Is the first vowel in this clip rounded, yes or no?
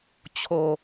yes